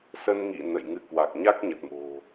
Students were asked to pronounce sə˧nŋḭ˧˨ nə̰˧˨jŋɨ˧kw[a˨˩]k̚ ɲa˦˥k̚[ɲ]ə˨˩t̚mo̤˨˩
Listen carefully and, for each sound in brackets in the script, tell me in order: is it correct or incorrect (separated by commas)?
correct, correct